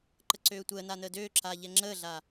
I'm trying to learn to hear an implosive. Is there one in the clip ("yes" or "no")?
no